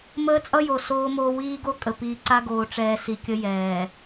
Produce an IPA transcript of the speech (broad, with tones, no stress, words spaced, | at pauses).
məː˦t͡sʼʌ˦jo˨ soː˦moː˦ wiː˦ɡo˦ kʼə˨piː˨ǀa˦ ɡoː˨ʈ͡ʂɛː˨ si˨kʲə˦ jɛː˨